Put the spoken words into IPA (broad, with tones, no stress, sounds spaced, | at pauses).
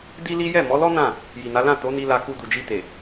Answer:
d i˦ l i˦ j ɛ˦˨ m ɔ˨˦ l ɔ˦ n ã˦˨ | j i˨ n a˨˦ l ã˦˨ t o˨˦ n i˧ l a˧ k u˧ d u˨ d͡ʒ i˧ t e˨